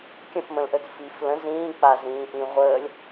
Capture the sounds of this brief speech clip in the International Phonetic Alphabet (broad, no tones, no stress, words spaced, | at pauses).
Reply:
kʲə̃fmə̃lʔəd fif lə̃ zĩː k͡pazĩːʔĩ ʁʷəːlʲ